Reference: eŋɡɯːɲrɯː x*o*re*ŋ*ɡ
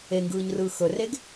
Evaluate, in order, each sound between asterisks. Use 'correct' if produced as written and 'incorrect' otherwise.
incorrect, incorrect

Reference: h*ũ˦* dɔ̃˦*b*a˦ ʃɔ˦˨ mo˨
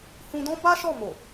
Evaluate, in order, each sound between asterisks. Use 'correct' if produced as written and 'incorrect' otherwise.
incorrect, correct

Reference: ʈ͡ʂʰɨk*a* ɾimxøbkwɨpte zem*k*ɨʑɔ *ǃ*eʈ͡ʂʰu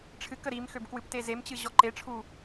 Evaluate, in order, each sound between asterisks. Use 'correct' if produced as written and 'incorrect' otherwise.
incorrect, incorrect, correct

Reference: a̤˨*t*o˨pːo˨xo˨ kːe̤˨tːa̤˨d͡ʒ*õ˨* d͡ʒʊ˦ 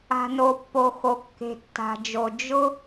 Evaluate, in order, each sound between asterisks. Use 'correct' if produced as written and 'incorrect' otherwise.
incorrect, incorrect

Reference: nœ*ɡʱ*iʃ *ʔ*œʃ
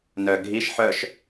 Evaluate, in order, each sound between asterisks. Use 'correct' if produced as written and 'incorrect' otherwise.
correct, incorrect

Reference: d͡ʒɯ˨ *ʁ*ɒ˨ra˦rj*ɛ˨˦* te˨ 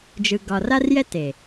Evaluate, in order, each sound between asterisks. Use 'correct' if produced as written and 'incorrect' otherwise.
incorrect, incorrect

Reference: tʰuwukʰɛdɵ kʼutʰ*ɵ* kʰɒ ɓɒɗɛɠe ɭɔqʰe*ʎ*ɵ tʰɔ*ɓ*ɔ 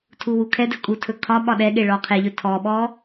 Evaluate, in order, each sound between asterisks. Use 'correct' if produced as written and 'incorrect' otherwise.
correct, correct, correct

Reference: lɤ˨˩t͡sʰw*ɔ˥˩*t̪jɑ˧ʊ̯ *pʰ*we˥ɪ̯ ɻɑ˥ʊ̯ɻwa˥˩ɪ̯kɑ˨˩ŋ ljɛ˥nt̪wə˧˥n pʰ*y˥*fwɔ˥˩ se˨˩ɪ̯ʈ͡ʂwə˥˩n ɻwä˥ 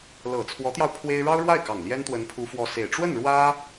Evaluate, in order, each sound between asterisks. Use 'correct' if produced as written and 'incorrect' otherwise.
incorrect, correct, incorrect

